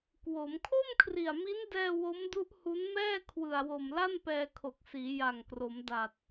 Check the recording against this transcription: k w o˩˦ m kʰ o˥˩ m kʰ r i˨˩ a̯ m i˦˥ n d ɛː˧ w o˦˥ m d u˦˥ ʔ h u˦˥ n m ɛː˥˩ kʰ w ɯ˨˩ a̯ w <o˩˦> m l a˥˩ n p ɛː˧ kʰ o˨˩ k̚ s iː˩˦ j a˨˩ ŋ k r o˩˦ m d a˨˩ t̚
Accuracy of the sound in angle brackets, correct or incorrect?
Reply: incorrect